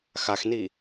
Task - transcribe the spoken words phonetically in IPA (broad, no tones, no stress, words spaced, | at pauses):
xaxni